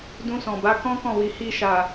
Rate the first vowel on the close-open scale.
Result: close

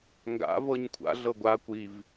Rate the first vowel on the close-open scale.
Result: open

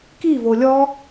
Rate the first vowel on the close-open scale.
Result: close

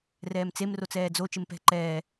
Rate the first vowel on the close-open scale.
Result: mid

